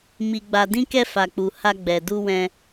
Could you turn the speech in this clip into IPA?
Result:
m i˧ ɡ͡b a˧ d ĩ˦ k ɛ˦ f a˧ k͡p u˧ h a˦ ɡ͡b ɛ˧ d u˦ w ɛ̃˧

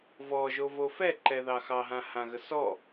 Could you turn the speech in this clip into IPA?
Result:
v ɔ ʒ o v o f ɛ ǃ ɛ ð ɑ x ɑ ɦ ã h ã ɣ ə s ɔ

